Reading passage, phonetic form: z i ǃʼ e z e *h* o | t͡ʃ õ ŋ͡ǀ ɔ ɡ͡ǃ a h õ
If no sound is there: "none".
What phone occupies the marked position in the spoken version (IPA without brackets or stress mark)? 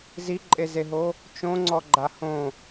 ɦ